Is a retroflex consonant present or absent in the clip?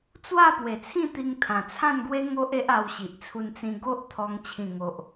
absent